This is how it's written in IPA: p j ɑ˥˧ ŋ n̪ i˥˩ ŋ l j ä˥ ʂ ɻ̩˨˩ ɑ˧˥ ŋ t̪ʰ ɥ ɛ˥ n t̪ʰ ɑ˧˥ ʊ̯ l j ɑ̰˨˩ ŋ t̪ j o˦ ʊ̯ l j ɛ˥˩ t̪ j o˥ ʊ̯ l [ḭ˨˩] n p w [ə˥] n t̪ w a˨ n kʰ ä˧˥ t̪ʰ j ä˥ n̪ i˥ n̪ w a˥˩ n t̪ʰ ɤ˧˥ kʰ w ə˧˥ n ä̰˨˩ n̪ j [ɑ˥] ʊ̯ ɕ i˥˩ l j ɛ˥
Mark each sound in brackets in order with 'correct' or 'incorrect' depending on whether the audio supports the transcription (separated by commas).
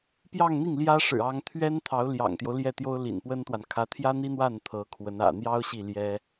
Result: correct, correct, correct